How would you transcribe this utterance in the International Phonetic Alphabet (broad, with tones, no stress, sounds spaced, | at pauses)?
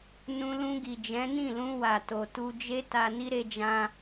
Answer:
n ũ˧ l ũ˧ ɡ i˨ d͡ʒ ɛ̃˨˦ n ĩ˦˨ l ũ˧ w a˨ t o˨ t u˧ d͡ʒ e˦ t a˧ n i˦ ɾ e˦ d͡ʒ ã˦